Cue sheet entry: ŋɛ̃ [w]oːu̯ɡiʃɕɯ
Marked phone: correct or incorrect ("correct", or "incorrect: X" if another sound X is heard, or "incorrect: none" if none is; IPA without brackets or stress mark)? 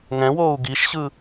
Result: correct